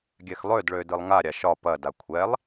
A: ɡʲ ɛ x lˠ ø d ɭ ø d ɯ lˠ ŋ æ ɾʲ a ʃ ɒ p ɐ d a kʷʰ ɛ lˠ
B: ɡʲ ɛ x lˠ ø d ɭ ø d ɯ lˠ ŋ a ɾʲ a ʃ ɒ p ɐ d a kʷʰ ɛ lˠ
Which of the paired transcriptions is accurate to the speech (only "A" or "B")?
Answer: B